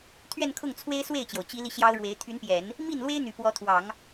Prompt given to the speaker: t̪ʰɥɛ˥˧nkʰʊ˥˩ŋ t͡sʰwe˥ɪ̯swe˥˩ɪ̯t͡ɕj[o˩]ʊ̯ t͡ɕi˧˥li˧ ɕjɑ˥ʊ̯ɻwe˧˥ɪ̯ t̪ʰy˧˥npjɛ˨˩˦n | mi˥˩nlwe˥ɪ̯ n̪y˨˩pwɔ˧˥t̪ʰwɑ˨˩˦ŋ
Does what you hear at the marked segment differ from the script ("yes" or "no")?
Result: no